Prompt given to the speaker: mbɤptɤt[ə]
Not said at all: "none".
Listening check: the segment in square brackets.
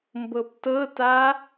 a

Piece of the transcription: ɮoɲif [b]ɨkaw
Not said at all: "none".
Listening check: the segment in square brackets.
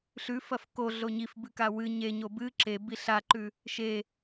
b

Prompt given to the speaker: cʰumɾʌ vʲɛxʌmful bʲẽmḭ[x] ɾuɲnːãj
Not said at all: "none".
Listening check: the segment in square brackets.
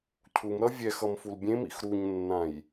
x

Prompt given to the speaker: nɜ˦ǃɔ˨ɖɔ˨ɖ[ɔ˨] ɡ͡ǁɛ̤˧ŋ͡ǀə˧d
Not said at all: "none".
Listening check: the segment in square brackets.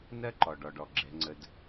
ɔ˨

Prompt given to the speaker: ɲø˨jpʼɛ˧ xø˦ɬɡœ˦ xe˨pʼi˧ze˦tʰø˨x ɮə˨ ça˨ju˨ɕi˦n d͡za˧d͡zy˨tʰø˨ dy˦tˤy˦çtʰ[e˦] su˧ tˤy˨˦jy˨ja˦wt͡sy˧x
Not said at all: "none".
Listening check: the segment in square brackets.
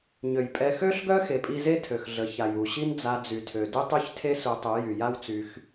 e˦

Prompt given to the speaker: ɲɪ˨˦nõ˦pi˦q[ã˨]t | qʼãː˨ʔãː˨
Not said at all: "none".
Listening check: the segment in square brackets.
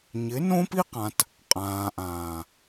ã˨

